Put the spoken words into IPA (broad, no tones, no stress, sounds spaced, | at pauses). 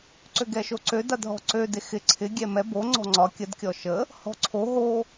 ǀ ø ɡ ɛ ʃ o ǀ ø d a d ɦ ɔ̤ ǀ ø d e x ɪ ǀʰ ɪ ɡʲ ɛ m ɛ b o ŋ͡ǀ ɔ̤ ŋ͡ǀ ɒ kʲ ə d kʲ ɔ ʃ ə | h ɔ̤ ǀʰ o ɦ o